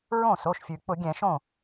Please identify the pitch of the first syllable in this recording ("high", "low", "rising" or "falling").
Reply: falling